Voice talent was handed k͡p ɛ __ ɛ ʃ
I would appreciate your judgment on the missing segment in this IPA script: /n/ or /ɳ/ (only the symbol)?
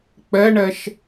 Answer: ɳ